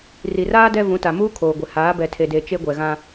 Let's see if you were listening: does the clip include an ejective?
no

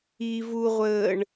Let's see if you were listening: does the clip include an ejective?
no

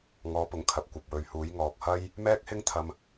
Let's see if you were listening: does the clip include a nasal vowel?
no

